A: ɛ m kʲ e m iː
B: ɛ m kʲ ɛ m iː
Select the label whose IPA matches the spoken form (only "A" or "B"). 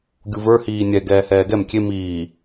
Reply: A